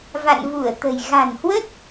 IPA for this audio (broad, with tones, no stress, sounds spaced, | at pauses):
v a̰˧˨ n v u˧˩ ə̯ t̪ ə̤˨˩ j ɣ a̤˨˩ n h w ə˦˥ t̚